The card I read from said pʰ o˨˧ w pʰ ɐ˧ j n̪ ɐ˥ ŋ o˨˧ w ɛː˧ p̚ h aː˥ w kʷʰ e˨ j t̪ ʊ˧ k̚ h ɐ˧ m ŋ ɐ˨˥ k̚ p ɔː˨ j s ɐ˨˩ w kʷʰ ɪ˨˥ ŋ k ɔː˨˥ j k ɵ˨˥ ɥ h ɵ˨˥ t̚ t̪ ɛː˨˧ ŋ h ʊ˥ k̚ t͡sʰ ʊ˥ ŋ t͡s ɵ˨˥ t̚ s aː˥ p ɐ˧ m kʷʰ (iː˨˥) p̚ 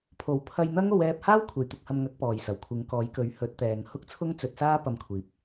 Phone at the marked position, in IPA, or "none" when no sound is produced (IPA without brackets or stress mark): iː˨˥